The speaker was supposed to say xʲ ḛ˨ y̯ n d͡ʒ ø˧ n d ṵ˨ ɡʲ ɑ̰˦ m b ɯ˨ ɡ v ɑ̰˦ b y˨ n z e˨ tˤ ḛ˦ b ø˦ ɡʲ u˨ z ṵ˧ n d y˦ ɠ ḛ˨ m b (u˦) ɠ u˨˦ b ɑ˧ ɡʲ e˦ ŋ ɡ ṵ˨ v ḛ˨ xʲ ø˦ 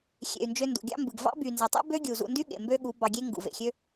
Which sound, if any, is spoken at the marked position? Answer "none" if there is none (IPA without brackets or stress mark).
ø˦